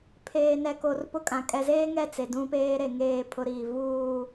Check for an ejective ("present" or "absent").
present